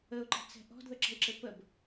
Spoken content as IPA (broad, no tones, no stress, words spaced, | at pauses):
əʊ̯ǃɛ̤t͡sɛ̤ ʔɔ̤dðəǁə̤ɪ̯ǁɘ pəb